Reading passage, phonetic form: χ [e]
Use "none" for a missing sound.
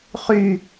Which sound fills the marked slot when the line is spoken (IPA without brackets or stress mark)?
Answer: y